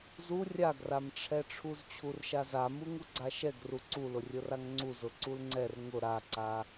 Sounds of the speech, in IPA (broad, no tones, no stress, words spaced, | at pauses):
zu rʲaɡramʈ͡ʂʰɛʈ͡ʂʰuz t͡ɕʰurʃaza muŋuɡ͡ǀaʃɛɡ ruǀulʊ rʲʊraŋŋ͡ǀu zʊǀulŋ͡ǀɛr ŋʊ ɾaǀa